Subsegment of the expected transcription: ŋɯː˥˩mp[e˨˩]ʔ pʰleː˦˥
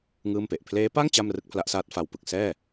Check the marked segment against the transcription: correct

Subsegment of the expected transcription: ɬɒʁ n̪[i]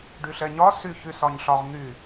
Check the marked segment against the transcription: incorrect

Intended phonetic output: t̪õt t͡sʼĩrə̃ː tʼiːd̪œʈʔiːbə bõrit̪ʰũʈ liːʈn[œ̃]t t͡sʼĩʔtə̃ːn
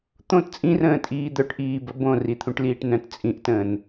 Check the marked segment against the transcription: correct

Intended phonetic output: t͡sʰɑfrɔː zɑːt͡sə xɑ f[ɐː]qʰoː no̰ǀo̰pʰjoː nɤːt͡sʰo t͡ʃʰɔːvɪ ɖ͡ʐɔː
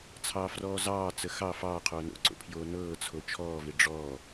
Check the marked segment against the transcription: incorrect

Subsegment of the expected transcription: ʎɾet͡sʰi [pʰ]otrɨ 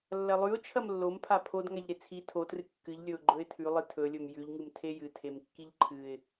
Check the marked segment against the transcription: incorrect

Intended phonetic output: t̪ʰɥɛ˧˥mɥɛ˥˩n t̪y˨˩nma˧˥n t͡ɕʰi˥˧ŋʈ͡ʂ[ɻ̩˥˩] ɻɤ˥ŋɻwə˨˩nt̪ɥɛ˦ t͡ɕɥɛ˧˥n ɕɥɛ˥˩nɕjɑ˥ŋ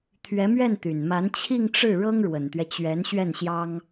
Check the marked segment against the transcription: correct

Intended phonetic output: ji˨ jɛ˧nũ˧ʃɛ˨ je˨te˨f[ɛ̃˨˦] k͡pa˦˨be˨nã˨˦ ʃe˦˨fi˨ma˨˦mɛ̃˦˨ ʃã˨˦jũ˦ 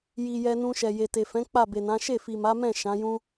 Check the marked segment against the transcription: correct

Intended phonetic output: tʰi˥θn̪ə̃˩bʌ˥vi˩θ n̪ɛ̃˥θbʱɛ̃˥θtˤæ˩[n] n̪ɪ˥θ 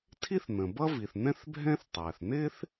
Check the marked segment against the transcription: incorrect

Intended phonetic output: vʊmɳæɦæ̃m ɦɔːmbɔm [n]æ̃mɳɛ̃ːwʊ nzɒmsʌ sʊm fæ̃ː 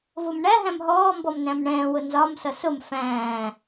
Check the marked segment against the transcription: correct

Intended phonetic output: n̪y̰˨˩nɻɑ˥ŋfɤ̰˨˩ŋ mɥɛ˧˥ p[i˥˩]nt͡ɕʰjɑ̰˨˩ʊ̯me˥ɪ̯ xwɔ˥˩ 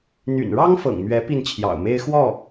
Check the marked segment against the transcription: correct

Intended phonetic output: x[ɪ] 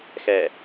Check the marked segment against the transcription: incorrect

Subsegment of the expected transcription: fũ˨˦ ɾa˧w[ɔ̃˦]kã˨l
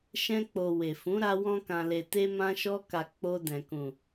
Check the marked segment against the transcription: incorrect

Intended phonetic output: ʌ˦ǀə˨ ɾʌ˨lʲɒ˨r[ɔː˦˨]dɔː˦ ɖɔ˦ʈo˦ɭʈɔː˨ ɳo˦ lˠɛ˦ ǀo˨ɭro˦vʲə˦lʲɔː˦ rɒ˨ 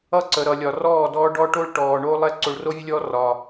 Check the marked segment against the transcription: correct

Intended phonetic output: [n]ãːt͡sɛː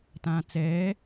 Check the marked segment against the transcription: incorrect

